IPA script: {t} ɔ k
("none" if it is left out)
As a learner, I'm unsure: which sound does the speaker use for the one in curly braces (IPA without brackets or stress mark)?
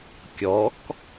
kʲ